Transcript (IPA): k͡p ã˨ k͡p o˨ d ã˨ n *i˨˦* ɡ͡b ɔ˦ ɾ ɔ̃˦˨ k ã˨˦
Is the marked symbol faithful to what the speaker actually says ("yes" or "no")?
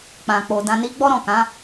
yes